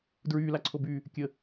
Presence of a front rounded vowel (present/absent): present